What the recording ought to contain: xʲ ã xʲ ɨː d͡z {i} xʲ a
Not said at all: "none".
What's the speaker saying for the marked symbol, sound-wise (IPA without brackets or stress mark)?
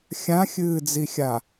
i